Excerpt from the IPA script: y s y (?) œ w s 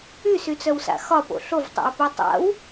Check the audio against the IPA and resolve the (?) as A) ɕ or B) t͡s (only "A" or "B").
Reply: B